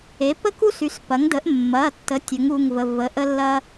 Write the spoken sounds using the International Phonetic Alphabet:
e˩˥ p ə˥ k u˥ s y˩˥ s p ɐ˩˥ ŋ d ə˩˥ ʔ mː ɐ˩˧˩ tː ə˩˥ tʲ ə˩˥ ŋ u˩˧˩ ŋ v ə˩˧˩ v ə˩˧˩ ʔ ə˥ lː ɐ˥

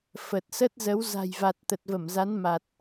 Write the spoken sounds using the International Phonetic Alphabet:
f ə˨˩ t̚ s ə˦˥ t̚ z ə˨˦ w z a̤˨˩ j v a˨˩ t̚ t̪ ə˨˩ t̚ v ə˧˩ m z a˨˦ n m a˨˩ t̚

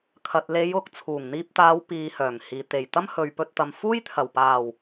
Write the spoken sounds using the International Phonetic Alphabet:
kʰ ɐ˨ t̚ l e˨˧ j ʊ˨ k̚ t͡sʰ uː˨˩ ŋ n̪ iː˧ p̚ t̪ aː˨˧ w p iː˨ h œː˨˩ ŋ h iː˨ t̪ e˨˩ j t̪ ɐ˥ m h ɵ˨ ɥ p ɵ˧ t̚ t̪ ɐ˨ m f uː˥ j t̪ʰ ɐ˨˩ w p aː˨˩ w

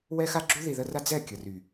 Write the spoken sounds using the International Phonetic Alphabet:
w ɛ˦ x a˦ ɡ͡ǁ u˦ ð i˨ ð ə˦ r a˦ d͡z ɛ˦˨ kʲ ə˨ r y˨

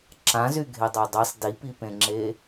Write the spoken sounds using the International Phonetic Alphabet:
ǁ ã z y ɡʱ e dˤ a dˤ i sˤ d i p i p ẽ ŋ͡ǁ e

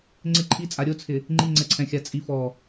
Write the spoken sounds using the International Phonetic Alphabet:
ŋ͡ǀ ɪ ǃʰ i t͡sʼ a ɾʲ o t͡sʰ ɪ | ŋ͡ǃ i ŋ͡ǀ ɛ ǀʰ ɛ̃ xʲ a t͡sʼ i f ɔ

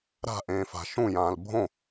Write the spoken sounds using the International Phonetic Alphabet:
ɾ a̤ ʔ ẽː f a̤ ʃ ũ j ãː l bʱ õ

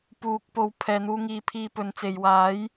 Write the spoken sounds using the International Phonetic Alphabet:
p uː˨ k̚ p o˨ w pʰ ɛː˨ n̪ uː˧ ŋ iː˨˧ pʰ iː˧ p ɵ˨˧ n t͡s e˨ j w aː˨˥ j

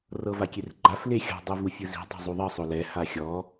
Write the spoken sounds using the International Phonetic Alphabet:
r ɤ v a kʲ e r ɡ͡ǃ a f l e xʲ ɔ̤ dˤ u v u fʲ ɯ z i̤ dˤ o̤ zˤ u ðˤ ɯ sˤ o l ɛ h a xʲ ɔ

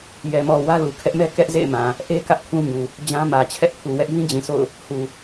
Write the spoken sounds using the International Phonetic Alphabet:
j ɛ˨ m ɔ˨ w ä˦ l u˨ kʰ ɛ˦ ʔ m ɛ˦ k ɛ˦ ʔ z ḛ˦˨ ɪ̯ m ã˨ | ʔ e˦ k ä˦ ʔ kʰ ũ˦ ɲ u˨ | d͡ʑ ã˦ m ä˨ t͡ɕʰ ɛ˦ ʔ pʰ u˨ w ɛ˦ ʔ j ĩ˦ d͡ʑ ĩ˨ sʰ o̰˦˨ ʊ̯ | h u˨

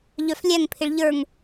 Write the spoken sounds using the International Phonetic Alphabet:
ʎ œ f lʲ æ ŋ pʰ ɪ ɭ ʎ ə˞ ŋ

